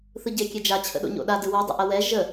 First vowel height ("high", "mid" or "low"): high